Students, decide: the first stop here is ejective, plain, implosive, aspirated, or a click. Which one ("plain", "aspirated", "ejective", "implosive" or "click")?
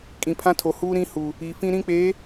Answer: ejective